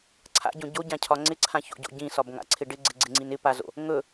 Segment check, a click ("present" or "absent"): present